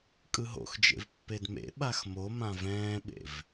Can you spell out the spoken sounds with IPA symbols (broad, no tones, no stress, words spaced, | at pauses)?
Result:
kʼɯɦo̰xd͡ʒḛv pːedmḛɓax momã vɛ̃ːɓḛv